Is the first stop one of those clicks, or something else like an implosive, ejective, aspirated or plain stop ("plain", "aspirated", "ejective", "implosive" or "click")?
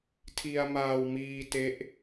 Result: aspirated